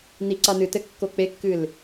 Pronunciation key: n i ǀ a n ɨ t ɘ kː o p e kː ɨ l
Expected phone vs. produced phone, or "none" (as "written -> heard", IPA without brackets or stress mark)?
p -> k͡p